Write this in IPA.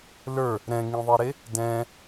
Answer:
l ə˞ | ɾ ɛ̃ ŋ ĩ ðˤ i ɾ e | d ɛ̃

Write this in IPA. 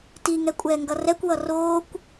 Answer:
t i ŋ ɛ kʷʼ ɛː ŋ ɡ ʌ r ɛ kʷ w ʌ r oː kʷ

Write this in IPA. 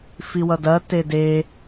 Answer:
f i w ʌ d ɐ t e d e

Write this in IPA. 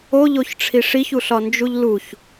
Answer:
o ʎ o ç ʈ͡ʂʰ i ʂ i ç u ɬ ɒ n d͡ʒ u ʎ l u ç

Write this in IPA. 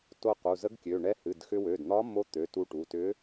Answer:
t o˧ q u˩˧˩ z ə˧˥ ɡ kʲ ø˩˧˩ ɳ ɛ˧˥ h ɨ˩˧˩ d x ʏ˧ w ø˩˧˩ d n̪ ɒ˧˥ m o˧˥ t̪ ø˩˧˩ t u˧ ʈ u˩˧˩ t ʏ˧˥

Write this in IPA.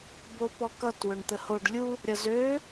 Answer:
b o p ɔ k ʌ t w ø ɳ t̪ ə h o ɖ lʲ u | ɾʲ ʌ z ø

